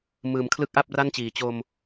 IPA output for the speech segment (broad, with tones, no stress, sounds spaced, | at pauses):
m ɯː˩˦ m kʰ l ɯ˥˩ k̚ ʔ a˥˩ p̚ r a˥˩ n t͡ɕ iː˩˦ t͡ɕ o˧ m